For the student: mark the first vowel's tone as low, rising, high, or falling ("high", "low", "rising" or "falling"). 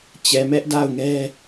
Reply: low